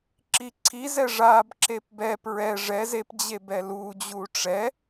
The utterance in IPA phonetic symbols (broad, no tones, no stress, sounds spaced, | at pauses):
ǁ i ǀʰ i z ɛ ʐ a b ǁ e p b ɛ p ɹ ɛ ʐ ɛ z e p d͡ʑ e b ɛ l u d͡ʑ u ʈ͡ʂ ɛ